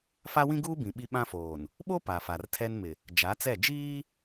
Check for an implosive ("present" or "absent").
present